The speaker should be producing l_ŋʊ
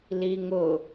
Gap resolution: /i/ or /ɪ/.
i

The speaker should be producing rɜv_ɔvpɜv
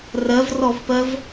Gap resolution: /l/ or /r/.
r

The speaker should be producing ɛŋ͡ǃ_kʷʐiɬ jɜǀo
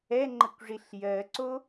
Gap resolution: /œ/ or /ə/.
ə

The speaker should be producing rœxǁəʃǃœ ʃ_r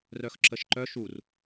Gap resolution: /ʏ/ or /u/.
u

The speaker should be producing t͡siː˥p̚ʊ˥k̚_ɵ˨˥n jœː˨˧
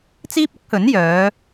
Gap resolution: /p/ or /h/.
h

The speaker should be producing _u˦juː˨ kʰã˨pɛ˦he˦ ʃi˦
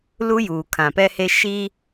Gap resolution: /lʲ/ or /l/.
l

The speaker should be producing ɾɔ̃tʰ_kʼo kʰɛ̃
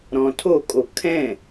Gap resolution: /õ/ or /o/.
o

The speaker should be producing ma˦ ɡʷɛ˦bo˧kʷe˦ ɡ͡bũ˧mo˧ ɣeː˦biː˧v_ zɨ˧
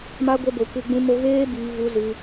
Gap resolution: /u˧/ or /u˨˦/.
u˧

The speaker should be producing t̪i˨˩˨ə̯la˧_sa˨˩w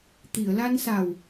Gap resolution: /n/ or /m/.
n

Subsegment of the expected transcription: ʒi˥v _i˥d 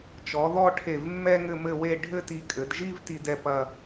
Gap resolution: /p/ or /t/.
t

